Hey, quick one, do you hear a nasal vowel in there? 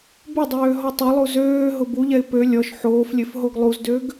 no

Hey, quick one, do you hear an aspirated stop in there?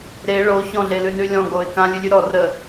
no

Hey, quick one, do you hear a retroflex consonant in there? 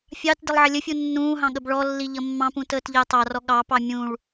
yes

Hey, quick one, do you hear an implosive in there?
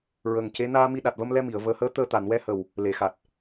yes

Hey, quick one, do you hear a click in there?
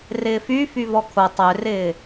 no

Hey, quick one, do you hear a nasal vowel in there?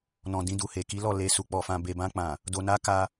yes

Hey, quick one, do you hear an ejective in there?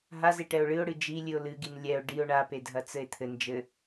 no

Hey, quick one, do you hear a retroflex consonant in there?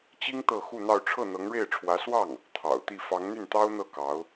yes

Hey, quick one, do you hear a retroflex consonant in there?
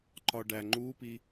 yes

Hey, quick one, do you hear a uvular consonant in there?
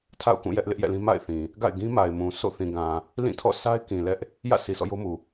no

